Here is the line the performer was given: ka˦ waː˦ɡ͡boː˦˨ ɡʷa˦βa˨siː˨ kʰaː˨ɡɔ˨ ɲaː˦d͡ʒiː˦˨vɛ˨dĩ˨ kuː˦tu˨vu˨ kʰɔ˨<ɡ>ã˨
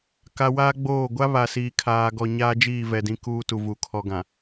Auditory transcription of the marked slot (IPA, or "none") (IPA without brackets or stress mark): ɡ